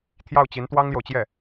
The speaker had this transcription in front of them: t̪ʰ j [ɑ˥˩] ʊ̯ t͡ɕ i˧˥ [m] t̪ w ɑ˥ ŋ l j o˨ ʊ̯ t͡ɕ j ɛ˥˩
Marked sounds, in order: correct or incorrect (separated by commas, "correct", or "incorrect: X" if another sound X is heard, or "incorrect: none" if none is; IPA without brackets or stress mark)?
correct, incorrect: n